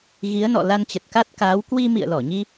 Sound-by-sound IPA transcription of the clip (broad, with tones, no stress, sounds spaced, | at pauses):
ɣ i˨˦ ə̯ n ɔ̰˧˨ l a˧ n t͡ɕ ə˨˩ t̚ k a˦˥ t̚ k aː˨˦ w k w i˧ m ḭ˧˨ ə̯ l ɔ˧˩ ɲ i˧